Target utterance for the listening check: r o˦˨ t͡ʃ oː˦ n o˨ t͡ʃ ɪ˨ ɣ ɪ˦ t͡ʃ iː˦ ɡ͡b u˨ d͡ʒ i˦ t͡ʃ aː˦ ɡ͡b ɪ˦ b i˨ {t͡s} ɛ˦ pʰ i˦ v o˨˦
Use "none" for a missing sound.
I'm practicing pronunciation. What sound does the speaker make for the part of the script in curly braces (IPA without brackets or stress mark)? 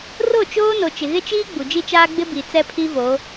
t͡s